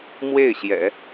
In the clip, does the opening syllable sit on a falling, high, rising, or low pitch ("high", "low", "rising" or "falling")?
falling